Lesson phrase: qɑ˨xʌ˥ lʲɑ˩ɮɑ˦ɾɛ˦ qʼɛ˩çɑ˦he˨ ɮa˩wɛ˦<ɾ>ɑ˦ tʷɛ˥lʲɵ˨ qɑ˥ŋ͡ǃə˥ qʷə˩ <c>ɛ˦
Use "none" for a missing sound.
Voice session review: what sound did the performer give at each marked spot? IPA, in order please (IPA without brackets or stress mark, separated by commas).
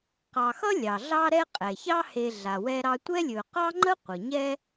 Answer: ɾ, ɲ